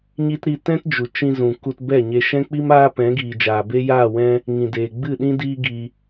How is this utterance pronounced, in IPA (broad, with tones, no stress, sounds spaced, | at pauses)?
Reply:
ɲ i˦ t ɾ i˧ t ɛ̃˦ t d͡ʒ u˨ t͡ʃ ĩ˧ z ũ˨ k u˧ t b ɛ˦˨ ɲ e˧ ʃ ɛ̃˦ k͡p i˦ m aː˦ p ɛ̃˨˦ ɡ iː˨ d͡ʒ aː˨ b e˦ j aː˦˨ w ɛ̃˦ | ŋ ĩ˨ d eː˨ ɡ͡b ɨ˦˨ ɗ ĩ˦ d iː˦ ɡ i˧